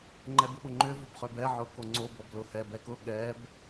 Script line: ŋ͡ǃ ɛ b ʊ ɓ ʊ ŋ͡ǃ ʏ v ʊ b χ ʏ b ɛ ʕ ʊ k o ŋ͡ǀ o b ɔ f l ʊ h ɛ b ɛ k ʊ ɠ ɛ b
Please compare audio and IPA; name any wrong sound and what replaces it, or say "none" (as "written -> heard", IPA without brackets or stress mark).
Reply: f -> b